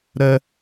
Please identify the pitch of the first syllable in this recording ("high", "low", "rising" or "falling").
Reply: high